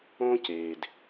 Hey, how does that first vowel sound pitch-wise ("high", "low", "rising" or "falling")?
high